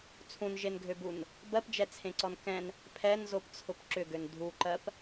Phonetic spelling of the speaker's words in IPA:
t͡sʰũnʒenɡʱøbun | bɜpd͡ʒɛt͡sʰẽǀɔn kɛ̃n | pʰɛnzopt͡sʰʊp ǁʏɡøn dʱuǃɜp

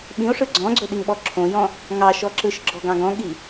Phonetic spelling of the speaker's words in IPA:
ɓĩo̯ʂɯ ɡ͡ǀɔ̃ɡ͡ǀɵɗiŋɓɔ ǁʰõjɔ̃ | ŋɑʃɔ ǁɯʃɡ͡ǁɔɡɑ̃ɡ ɔ̃ɠi

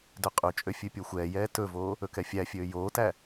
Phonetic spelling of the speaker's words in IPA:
døqʼʉt͡ʃʼø fʲʉpʲoxʷɛːjɛː tɵvoː | ɵkɛfʲæfʲøː joːtæ

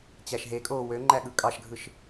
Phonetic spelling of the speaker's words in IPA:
t͡ɕæʃɦekʼoː wø ŋ͡ǃæɠɯkʼɑʃɡʱɯʃ

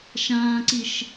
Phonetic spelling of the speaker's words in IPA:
ʃãːǀiʃ

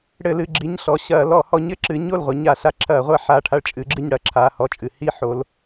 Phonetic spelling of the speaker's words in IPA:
ɽɘ˧˩˧lɨ˩˧˩ɡ͡ǁi˩˧˩ɲɬɔ˩˧˩ ɕɐː˧˩˧ lɔ˧˩˧hɔ˨˦ɲ ɘ˩˧˩ǁɨ˨˦ɲo˥˨lʁʷɐ˨˦ ɲa˧˩˧ɬa˨˦ǁʰɐː˧˩˧ʁʷa˥˨ ħa˥˨ ʈʰa˥˨ɭt͡ʃʼɨ˨˦ɡ͡ǁɨ˥˨ɲ ɽɐ˧˩˧ǁʰa˩˧˩ hɔ˥˨t͡ʃʼɨ˧˩˧ hi˥˨ ħo˨˦l

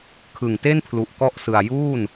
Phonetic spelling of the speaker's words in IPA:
kʰɯ˨˩ŋte˥˩npʰlu˨˩ʔ kɔ˥˩ʔsɯ˧a̯ juː˥˩n

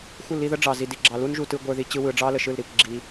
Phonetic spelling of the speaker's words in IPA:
xʷɨ˦˨li˧ðə˦ ɖ͡ʐɑ˨zi˨ di˨ɡ͡ǁɑ˨lu˦n ʒu˧ tɯ˦ɡʷə˞˦ði˦ t͡ɕɯ˦wɯ˧ ɖ͡ʐɑ˦lə˨ʃɯ˦˨lɾi˦˨kʷ ɡ͡ǁi˦

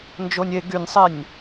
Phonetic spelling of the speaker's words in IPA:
nd͡ʒonʲe ɡynʲsˤenʲ

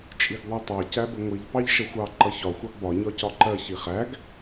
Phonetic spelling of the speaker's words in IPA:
t͡ʃʼiɡðˤɜtˤɑ cæbəŋʷiʎ pɑʎʃʌxʷɑ ǃʌçɒ xʷɑɡbɒ ɲɒcɒǃɜ çiχæɡ

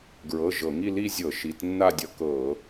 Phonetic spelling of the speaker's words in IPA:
ɡɹɤ˩˧˩ ʒɤ˧˩˧ŋi˥˧ li˥˧zʲɤ˧˩˧ ʃi˩˧˩tnːa˥˧dʲʌ˧kɤ˧˩˧

